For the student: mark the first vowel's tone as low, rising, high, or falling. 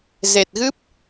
low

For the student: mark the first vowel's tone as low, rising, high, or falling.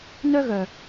high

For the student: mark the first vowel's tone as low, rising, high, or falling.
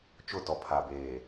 falling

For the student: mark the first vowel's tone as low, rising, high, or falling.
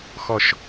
low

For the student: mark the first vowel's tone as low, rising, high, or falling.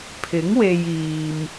rising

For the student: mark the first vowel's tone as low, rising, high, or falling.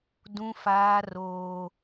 high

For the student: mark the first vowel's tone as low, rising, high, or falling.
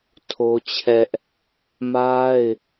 high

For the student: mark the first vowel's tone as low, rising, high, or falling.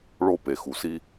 high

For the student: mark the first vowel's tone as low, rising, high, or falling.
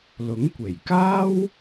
rising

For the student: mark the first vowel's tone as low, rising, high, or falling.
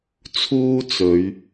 high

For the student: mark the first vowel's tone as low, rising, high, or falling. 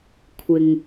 low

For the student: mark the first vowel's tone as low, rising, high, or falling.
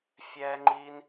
high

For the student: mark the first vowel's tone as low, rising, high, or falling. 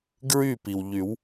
falling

